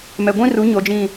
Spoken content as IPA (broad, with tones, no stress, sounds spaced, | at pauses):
m ɛ˨ ɡʷ ĩ˦ r u˨˦ ɲ o˨ d͡ʒ ĩ˨